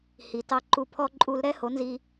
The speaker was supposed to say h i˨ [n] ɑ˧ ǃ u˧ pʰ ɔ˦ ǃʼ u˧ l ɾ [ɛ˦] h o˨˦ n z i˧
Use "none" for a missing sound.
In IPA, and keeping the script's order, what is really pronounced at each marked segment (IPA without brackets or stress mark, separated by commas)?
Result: t, ɛ˦